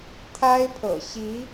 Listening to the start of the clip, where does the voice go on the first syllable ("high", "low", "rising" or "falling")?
high